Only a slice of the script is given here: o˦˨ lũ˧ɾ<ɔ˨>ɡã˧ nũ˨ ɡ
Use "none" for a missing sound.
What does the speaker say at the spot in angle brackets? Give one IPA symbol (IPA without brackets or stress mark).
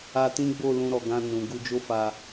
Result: ɔ˨